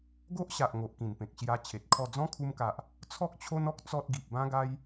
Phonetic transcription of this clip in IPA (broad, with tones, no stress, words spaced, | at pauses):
ɡo˦ʔɕa˨ʔ ŋo˨ʔkĩ˨˩npẽ˨k̚ ɕja˧ t͡ɕʰe˨t̚kʰɔ˥˧ d͡zɔ̃˦kʰu˧mka˨ʔ | t͡sʰɔ˦k̚t͡ɕʰo˦nɔ˦k̚ t͡sɔ˦t̚ɡi˨p̚ bã˦ɡa˦j